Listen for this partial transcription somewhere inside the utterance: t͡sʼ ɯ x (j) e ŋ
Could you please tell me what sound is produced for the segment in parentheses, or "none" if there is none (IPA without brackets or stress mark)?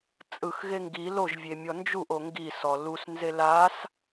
ɣ